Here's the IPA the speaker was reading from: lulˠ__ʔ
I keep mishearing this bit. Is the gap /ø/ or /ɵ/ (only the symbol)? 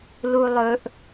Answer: ɵ